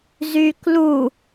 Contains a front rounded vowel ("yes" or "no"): yes